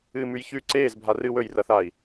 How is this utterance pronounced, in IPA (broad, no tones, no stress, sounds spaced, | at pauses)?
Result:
ɨː m ʉ j ç ʉ ǀ eː z bʱ a r ɨ w ɵ j r ɐ θ aː i̯